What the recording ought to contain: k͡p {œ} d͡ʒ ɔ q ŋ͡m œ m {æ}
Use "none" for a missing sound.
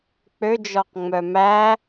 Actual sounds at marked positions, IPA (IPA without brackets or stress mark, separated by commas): ø, æ